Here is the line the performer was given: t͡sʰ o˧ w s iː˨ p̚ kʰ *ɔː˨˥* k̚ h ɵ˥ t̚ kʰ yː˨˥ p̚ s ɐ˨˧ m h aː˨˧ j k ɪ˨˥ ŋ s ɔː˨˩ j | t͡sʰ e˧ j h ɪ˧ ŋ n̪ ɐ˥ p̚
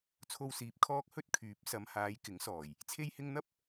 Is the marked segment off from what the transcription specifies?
yes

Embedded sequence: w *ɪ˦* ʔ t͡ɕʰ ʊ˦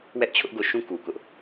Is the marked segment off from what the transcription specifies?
yes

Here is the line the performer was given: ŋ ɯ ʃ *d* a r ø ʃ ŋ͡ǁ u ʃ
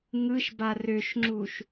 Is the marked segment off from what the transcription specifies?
yes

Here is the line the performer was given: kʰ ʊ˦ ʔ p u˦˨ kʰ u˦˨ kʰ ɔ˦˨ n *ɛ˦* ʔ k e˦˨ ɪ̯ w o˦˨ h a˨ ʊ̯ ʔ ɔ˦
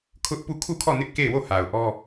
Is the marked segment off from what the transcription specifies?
yes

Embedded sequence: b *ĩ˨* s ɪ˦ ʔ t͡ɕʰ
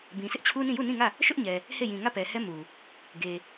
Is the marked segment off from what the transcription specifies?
no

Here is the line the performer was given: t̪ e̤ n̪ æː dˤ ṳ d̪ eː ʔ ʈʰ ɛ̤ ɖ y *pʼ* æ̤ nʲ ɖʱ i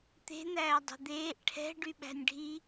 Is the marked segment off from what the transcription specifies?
yes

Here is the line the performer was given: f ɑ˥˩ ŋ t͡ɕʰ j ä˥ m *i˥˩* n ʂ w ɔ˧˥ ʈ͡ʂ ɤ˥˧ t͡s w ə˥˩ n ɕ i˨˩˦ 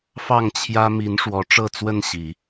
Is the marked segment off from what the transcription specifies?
yes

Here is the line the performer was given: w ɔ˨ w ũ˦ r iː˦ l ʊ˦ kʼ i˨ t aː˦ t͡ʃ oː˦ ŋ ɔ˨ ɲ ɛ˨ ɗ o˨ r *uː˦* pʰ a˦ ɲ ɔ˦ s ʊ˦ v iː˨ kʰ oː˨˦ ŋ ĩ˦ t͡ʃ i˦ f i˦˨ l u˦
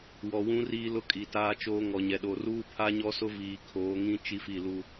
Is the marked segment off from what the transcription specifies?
no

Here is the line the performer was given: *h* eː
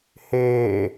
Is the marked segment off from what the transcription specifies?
no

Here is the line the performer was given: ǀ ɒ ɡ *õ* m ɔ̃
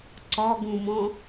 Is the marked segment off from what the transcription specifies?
yes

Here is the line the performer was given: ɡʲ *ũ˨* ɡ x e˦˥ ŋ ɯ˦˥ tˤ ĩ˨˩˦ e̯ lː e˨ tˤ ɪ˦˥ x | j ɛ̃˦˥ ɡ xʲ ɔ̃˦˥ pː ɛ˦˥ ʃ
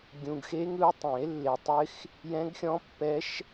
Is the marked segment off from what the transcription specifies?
no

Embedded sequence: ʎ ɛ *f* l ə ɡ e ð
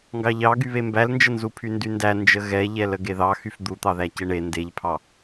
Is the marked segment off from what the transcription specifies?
yes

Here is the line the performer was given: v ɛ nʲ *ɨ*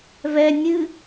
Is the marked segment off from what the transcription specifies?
no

